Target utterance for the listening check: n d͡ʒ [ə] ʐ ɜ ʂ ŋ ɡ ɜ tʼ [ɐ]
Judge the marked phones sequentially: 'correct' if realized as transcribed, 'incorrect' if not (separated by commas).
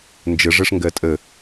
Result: correct, incorrect